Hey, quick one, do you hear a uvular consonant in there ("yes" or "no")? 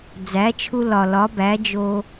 no